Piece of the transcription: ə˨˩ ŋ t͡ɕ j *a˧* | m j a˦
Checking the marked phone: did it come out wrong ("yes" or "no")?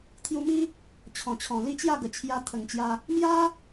no